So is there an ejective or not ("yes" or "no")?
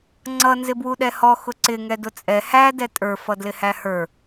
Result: yes